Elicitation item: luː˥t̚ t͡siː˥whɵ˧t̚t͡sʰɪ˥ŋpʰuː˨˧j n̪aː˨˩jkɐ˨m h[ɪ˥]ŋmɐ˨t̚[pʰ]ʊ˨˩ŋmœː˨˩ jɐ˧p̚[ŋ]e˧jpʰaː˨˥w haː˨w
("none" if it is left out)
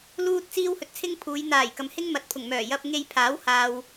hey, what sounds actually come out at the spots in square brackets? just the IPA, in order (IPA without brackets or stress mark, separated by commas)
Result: ɪ˥, pʰ, ŋ